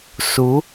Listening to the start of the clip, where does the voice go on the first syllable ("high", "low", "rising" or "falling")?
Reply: rising